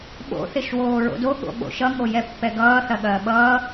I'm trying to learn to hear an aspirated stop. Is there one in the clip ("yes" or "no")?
no